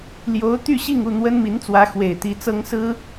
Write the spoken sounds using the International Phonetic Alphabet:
l j o˧˥ ʊ̯ t̪ y˥˧ ɕ i˥˧ ŋ u˥˩ n̪ w ə˥ n m i˧˥ n t͡s w ä˧˥ x w e˨˩ ɪ̯ t̪ i˧˥ t͡s ɤ˥ ŋ s ɹ̩˥

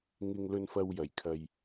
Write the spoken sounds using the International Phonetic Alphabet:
ŋ ɪ˧ ŋ l ɵ˧ n f ɐ˧ w j ɐ˨˩ j kʰ ɐ˨ j

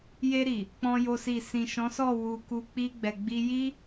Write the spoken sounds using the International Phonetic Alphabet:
j e˧ ɾ i˨ | k͡p ɔ̃˦ j o˦ s i˦˨ s ĩ˨ ʃ ɔ̃˨˦ s ɔ˦˨ w u˧ k u˧ k͡p i˧ ɡ͡b ɛ˨ ɡ͡b i˧ j i˦

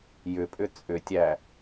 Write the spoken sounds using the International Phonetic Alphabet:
j ʏ pʼ ʏ t͡sʼ ʏ tʲ æ

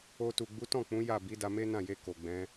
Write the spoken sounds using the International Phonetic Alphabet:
o˧ t u˨ ɡ͡b u˨˦ t ɔ̃˦˨ k͡p ũ˨˦ j a˦˨ b i˨˦ d a˧ m e˦ n ã˦˨ j e˧ k o˨ ɡ͡b ɛ̃˨˦

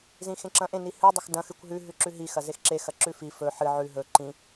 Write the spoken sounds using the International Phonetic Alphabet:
z ĩ x ẽ ǁ ɐ̃ ʔ ẽ n i h ɨ dˤ e x d ɐ̃ x ɨ kʷ ɦ ʉ ɦ ʉ ǁ ʉ ɦ i x ɐ z e x ǁ e x ɐ ǁ ʉ f i f ɵ ħ ɨ ʕ ʉ ɦ ɵ ǃ ĩ

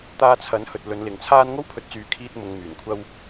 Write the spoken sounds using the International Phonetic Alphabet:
t̪ aː˧ t͡sʰ ɐ˨˥ n h ɵ˨ t̚ l ɵ˨˧ n l ɪ˨ ŋ t͡sʰ aː˥ n ŋ o˥ w pʰ ɵ˨˥ t̚ t͡s yː˨˥ kʰ iː˧ t̚ m ʊ˨ ŋ m yː˨˩ n kʷʰ ɐ˧ w

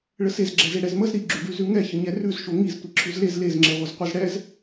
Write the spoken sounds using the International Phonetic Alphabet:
ɭ ə s e z ɡ͡ǁ ɛ z e ɽ ɛ z m ə z ɾ i ɡ͡ǁ ʉ ɖ ʉ z ʉ ŋ ɛ ç ə ɲ ɛ r ʉ z ʃ o ŋ i z tʷ i ǁʰ ʉ z l e z l e z ŋ͡ǁ e ʁʷ ə z qʷ ɛ z ɽ ɛ z

